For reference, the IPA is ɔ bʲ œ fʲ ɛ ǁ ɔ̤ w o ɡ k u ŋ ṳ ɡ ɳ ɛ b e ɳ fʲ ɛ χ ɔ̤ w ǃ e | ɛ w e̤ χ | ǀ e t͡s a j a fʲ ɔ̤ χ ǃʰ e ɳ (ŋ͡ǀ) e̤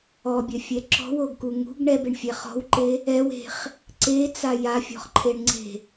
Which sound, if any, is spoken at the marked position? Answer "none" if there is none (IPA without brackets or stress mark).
ŋ͡ǀ